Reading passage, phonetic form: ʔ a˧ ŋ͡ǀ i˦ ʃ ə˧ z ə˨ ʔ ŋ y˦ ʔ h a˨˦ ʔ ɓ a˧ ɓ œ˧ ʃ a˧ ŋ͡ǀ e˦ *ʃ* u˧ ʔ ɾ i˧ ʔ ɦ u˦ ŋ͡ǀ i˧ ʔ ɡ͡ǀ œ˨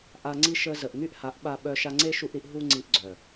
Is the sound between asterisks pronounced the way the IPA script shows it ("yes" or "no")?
yes